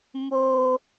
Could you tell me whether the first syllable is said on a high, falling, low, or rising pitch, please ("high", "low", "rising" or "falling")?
high